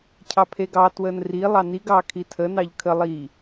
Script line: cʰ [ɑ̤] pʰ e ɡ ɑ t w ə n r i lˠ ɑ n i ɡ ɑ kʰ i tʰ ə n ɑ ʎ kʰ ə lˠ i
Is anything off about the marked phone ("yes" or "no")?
yes